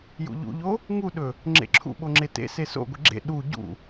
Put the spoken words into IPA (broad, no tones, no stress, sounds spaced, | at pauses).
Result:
j ṵ ʎ ṵ ʎ o | ŋ u ɗ ɵ | ŋ͡ǁ ḛ ǁʰ ṵ ɓ o ŋ͡ǁ e t ḛ s e s o̰ ɡʷ e ɡ͡ǁ ḛ ɗ u ɟ ṵ